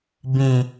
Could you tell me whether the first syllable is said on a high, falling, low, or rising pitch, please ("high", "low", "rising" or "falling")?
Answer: low